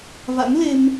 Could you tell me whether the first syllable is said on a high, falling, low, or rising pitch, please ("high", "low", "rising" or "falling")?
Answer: rising